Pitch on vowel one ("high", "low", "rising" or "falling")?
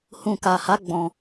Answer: low